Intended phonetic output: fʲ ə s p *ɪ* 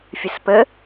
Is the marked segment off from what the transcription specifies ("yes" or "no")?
yes